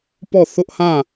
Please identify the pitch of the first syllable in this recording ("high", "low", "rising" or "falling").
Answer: falling